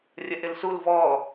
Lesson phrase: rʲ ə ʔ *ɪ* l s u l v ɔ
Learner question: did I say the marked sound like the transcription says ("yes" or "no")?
yes